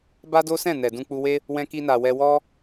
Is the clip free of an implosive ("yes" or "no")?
yes